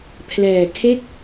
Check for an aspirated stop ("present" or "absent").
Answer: present